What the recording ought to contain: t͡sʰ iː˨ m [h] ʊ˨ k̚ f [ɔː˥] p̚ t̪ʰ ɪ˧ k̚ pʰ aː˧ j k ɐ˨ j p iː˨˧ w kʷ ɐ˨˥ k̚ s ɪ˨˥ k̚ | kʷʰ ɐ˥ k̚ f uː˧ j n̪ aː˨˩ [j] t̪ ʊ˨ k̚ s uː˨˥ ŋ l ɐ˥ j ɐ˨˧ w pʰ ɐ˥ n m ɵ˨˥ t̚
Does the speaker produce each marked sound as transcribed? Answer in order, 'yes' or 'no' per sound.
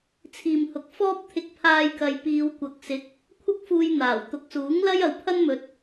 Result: yes, yes, no

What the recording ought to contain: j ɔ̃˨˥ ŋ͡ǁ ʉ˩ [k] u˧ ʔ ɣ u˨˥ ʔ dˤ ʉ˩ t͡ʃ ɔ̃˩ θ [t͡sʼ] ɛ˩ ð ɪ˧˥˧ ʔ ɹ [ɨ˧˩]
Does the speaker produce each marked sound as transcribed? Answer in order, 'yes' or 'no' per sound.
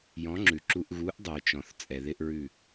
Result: no, yes, no

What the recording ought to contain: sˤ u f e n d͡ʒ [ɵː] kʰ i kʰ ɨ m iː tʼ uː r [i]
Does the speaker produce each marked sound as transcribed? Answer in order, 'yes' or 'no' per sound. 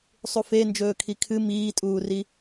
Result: yes, yes

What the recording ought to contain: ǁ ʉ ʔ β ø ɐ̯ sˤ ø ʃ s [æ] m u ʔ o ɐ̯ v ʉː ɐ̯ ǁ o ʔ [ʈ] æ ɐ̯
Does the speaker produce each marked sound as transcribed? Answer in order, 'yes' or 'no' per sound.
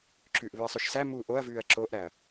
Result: yes, no

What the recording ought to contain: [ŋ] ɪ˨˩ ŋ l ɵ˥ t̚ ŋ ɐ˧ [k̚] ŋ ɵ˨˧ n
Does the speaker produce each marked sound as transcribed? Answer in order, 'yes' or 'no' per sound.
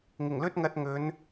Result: yes, no

